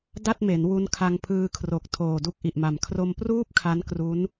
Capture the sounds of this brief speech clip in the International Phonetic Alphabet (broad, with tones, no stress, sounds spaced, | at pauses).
d a˥˩ t̚ m e˩˦ n w u˧ n kʰ a˧ ŋ pʰ ɯː˧ kʰ r o˨˩ k̚ tʰ oː˨˩ d u˦˥ k̚ ʔ i˨˩ ʔ m a˨˩ m kʰ r o˧ m p r uː˥˩ p̚ kʰ a˦˥ n k r u˦˥ n